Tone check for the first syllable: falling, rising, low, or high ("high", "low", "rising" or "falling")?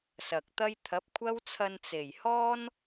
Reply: low